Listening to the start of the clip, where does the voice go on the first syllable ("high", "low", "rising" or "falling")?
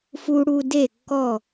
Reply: low